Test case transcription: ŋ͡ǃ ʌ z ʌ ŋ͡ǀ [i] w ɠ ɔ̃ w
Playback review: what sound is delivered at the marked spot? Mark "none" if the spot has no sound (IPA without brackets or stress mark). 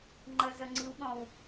i